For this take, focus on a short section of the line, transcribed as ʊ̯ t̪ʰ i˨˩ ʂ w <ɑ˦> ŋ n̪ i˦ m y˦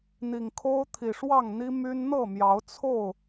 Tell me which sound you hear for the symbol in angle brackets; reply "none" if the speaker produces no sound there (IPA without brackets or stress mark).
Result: ɑ˥˨